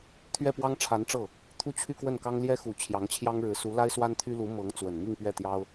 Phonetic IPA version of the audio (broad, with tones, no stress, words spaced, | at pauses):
t̪ʰɥɛ˥˩pwɑ˥ŋʈ͡ʂʰa˧˥nʈ͡ʂɤ˥˩ | t̪ʰu˥˧t͡ɕʰy˥˧kwə˥˩nkɑ˥ŋ ljɛ˥xu˨˩ t͡ɕʰjɑ˧˥ŋt͡ɕʰjɑ˥ŋɻɻ̩˧˥ su˧˥ la˥ɪ̯swa˥nt̪ʰy˥lu˧˥ mɤ˧˥ŋ t͡swə˨˩nmi˥˧ŋpɥɛ˥˩t̪jɑ˥ʊ̯